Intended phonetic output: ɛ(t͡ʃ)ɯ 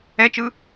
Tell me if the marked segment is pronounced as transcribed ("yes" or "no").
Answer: yes